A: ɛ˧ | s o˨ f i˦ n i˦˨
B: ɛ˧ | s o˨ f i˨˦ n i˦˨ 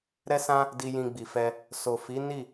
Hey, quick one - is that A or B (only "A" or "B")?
B